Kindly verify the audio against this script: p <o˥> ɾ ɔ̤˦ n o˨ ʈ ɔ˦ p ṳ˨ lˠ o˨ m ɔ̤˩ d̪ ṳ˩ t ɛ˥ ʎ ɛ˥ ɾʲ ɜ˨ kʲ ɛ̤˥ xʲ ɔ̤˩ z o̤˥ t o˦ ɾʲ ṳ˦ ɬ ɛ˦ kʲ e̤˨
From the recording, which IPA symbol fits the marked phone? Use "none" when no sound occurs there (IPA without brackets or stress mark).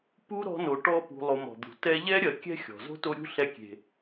u˥